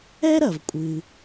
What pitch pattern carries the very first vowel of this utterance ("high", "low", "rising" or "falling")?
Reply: high